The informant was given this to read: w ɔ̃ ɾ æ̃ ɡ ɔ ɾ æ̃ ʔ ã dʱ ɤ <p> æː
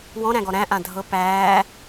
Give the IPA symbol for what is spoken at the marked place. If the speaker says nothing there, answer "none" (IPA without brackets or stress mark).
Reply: p